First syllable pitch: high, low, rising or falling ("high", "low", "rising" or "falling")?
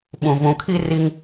low